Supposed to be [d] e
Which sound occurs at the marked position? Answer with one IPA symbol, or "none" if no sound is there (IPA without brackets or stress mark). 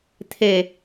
t̪ʰ